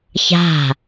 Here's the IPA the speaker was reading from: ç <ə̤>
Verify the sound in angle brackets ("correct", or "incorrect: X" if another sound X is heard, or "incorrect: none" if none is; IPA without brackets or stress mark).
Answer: incorrect: a̤